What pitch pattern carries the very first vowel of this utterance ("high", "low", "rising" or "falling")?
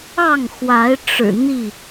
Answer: falling